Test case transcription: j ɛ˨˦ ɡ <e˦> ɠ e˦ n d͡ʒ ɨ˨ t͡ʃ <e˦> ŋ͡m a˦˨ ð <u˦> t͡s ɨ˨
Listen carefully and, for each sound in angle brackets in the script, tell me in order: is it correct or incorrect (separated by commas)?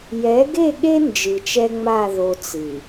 incorrect, incorrect, incorrect